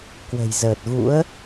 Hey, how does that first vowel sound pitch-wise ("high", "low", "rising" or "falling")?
low